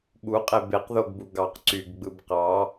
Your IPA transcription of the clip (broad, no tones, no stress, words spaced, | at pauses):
ɓuqʼe beqðoɡbu ɡɑq ǀyɡɡ͡bɯb qɑ